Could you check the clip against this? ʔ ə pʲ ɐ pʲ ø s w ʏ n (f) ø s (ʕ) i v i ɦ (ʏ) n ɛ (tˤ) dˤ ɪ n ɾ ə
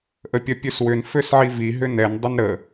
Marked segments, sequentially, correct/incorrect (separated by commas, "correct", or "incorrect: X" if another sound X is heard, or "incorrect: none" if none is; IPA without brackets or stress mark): correct, correct, correct, incorrect: n